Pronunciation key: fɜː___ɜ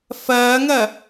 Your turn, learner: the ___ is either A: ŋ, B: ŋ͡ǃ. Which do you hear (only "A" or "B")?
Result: A